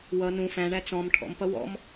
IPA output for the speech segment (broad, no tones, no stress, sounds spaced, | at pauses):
w ʌ n ũ f æ̃ ɳ æ t͡s ɔ̃ m ʈʰ ɔ̰ m p ʌ w ɔ̰ m